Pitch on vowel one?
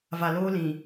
low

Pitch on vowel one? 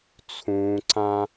low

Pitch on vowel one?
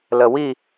low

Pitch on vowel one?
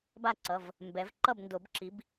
falling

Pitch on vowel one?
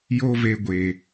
high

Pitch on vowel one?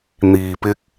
low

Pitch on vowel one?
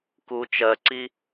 low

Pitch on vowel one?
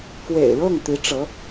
low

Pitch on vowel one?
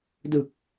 low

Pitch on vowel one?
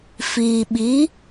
low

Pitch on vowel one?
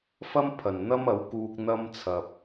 high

